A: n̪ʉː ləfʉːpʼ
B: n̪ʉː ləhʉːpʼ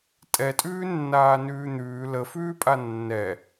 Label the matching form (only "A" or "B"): A